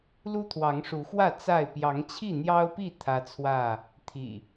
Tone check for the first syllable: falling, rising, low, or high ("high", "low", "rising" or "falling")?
high